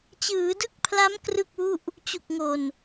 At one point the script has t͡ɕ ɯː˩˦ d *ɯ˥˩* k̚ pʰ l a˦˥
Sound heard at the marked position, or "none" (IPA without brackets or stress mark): ɯ˥˩